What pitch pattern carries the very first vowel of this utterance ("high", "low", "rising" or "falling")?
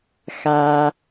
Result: low